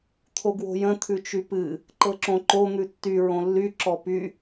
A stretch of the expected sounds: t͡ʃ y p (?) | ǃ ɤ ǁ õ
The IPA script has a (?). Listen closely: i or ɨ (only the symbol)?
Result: ɨ